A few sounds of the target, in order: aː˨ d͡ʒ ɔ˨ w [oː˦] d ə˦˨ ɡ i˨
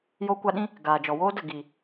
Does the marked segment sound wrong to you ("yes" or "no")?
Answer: no